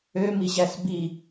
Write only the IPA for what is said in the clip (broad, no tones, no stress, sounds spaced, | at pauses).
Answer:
ø m i ʑ æ s b i